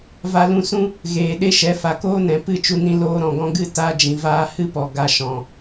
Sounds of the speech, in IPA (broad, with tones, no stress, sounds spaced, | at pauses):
v a˧ l ũ˧ s ũ˦ | ɣ eː˨ ɗ e˦ ʃ ɛ˨˦ f a˨ k oː˦ n ɛ̃˨ p ɨ˦˨ t͡ʃ u˧ n ĩ˧ l oː˧ ɾ ɔ̃˨ ɡ ɔ̃˦ ɡ ɨ˦ t a˦ d͡ʒ ĩ˨ v aː˦ h ɨ˦ p ɔ˨ ɡ a˧ ʃ ɔ̃˨